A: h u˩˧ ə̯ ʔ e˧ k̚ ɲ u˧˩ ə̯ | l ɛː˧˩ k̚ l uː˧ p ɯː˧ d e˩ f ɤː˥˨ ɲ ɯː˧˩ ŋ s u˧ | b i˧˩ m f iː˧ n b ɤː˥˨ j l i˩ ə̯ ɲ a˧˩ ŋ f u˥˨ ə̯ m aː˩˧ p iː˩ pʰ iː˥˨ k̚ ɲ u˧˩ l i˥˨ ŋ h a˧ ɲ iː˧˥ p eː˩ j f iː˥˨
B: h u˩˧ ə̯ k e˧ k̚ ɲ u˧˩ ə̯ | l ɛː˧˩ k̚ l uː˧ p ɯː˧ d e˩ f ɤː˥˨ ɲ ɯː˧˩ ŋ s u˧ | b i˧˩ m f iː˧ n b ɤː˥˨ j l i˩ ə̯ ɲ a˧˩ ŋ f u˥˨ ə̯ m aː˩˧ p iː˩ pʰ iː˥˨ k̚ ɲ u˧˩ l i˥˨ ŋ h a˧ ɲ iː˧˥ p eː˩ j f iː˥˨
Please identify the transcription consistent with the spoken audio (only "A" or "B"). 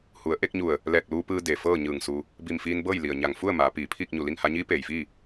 A